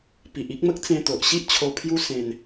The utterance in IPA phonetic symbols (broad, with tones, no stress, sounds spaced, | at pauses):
p i˨ ʔ i˦ k̚ m ə˦ k̚ t͡s ẽ˧ t̪ o˨ ʔ ɕ i˦ ʔ t͡ɕʰ o˧ pʰ j u˦ s ẽ˧ n